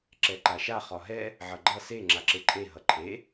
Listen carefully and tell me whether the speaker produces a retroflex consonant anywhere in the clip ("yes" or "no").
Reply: no